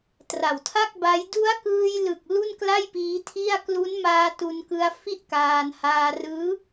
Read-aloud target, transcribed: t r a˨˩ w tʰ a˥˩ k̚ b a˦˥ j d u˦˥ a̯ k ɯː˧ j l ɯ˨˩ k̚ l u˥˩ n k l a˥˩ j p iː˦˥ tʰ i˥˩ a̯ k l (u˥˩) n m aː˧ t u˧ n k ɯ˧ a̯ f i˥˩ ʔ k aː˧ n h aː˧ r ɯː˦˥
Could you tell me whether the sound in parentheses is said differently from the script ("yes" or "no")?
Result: yes